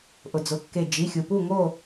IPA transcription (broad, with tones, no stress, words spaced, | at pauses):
ʔʊ˩d͡zʊ˩˧˩kːe˧˩ d͡ʒi˩˧˩xʲu˩pu˥˨ŋo˥˨